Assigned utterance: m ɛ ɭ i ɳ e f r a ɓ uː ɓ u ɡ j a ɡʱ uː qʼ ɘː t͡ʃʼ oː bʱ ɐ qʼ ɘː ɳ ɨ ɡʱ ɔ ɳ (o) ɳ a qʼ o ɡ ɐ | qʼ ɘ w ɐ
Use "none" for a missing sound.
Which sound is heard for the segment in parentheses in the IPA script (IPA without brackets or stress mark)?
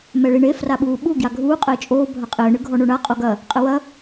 o